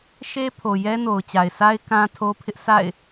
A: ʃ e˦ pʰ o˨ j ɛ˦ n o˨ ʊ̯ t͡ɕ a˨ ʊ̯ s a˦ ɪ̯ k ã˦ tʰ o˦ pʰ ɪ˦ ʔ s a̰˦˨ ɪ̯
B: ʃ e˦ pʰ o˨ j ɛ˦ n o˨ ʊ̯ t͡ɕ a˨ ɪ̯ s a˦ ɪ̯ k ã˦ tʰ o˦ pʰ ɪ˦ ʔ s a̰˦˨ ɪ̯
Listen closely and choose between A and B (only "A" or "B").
B